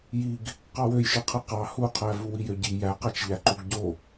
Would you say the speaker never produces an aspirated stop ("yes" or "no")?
no